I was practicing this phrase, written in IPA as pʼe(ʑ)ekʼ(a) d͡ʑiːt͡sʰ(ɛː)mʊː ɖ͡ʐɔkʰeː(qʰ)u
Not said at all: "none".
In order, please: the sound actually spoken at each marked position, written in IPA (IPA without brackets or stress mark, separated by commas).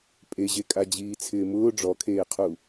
ʑ, a, ɪː, qʰ